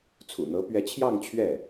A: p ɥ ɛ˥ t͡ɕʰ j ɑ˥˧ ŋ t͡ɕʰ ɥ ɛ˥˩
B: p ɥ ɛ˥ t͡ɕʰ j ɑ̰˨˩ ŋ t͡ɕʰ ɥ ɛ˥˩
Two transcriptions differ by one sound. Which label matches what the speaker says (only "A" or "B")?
A